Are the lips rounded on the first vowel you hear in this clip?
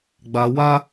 no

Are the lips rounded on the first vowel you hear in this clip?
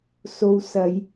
yes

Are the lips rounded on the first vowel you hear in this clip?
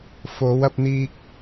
yes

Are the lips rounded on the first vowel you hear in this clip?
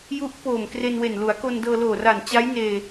yes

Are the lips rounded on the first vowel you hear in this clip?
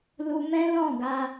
yes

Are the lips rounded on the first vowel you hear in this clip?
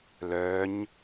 yes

